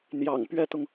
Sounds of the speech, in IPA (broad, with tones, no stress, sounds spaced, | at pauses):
n̪ j ɑ̰˨˩ ŋ p ɥ ɛ˥ t̪ ʊ˨ ŋ